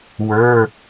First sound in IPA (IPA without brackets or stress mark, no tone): w